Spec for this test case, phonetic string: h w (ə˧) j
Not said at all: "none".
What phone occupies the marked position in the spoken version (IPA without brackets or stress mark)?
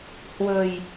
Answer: ə̤˨˩